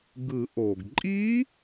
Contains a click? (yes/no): yes